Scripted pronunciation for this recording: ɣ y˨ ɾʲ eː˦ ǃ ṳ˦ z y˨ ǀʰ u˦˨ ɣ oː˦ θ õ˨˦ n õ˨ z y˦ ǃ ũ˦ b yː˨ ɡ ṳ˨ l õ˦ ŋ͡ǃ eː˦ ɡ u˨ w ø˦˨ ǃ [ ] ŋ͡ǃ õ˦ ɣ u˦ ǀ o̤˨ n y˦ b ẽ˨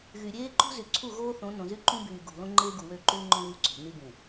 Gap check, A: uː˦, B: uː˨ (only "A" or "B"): A